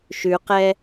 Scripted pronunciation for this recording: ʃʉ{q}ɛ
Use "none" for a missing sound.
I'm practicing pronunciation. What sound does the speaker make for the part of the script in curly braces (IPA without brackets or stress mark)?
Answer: q